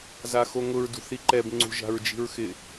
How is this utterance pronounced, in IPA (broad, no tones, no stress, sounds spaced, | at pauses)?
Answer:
z a x o ŋ ʊ ɹ d ṳ θ i ǃ ɛ b ŋ͡ǀ ṳ ʒ a̤ ɹ d͡ʒ i̤ ɹ x ɪ